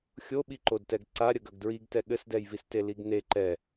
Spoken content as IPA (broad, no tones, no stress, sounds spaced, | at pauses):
xʲ o ɓ i ǃ o d t ɛ ɡ ǀ a ɾʲ ɐ ɡ ɐ ɡ d ɹ i ɡ t ɛ ɠ ɘ s d ɛ j v i s t e l i ɡ n e ǃ ɛ